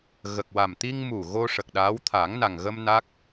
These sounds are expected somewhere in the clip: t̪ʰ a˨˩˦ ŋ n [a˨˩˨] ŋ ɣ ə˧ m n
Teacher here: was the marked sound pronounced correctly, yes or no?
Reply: no